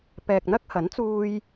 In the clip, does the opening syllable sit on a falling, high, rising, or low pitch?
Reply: low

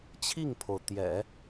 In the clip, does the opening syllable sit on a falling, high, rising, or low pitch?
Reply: falling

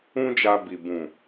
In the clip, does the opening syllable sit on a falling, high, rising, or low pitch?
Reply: high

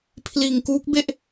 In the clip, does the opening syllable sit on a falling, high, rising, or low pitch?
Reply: low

